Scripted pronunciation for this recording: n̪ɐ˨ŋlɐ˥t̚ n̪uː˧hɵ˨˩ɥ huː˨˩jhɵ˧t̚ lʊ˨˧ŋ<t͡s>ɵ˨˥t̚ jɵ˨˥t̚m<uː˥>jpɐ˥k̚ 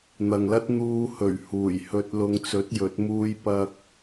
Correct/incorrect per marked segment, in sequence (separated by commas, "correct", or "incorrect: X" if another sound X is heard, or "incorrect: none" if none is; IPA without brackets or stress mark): correct, correct